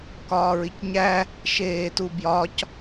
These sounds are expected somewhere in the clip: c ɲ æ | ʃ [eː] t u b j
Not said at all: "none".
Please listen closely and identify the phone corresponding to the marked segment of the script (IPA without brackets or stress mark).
eː